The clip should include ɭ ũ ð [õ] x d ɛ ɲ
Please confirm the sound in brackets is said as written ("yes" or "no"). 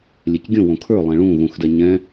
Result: no